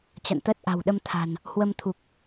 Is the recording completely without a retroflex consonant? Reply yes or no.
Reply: yes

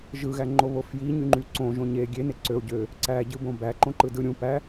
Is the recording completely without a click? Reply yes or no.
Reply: no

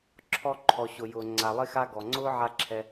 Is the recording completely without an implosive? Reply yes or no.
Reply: yes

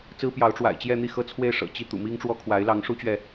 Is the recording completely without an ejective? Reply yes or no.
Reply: yes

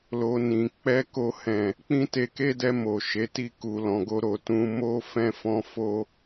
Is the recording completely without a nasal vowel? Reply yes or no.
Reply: no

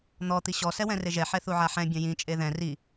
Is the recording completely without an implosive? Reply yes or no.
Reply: yes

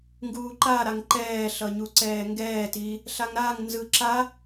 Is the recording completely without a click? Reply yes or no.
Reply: no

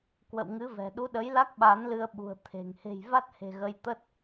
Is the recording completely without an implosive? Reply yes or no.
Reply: no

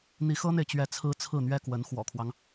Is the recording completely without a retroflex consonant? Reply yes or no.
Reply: yes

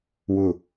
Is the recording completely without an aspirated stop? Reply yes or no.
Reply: yes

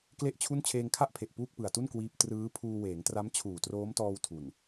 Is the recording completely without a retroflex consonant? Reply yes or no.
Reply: yes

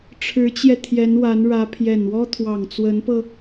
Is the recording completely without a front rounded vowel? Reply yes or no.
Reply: yes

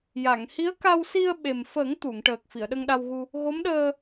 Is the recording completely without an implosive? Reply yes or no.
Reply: no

